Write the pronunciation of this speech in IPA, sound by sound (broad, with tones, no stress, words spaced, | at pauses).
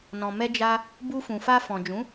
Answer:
nɔ̃˨mɛ˧d͡ʒa˧ | bu˧fũ˨fa˧ fɔ̃˨d͡ʒũ˨˦